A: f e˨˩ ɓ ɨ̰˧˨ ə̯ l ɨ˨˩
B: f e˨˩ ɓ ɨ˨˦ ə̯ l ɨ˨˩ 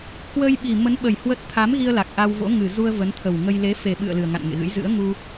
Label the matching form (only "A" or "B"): A